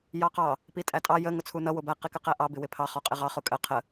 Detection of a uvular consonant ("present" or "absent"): present